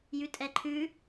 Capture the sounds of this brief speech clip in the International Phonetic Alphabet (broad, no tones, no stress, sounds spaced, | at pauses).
j ʉ tʼ ɛ ǃʰ ʉ